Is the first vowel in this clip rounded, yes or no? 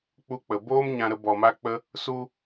yes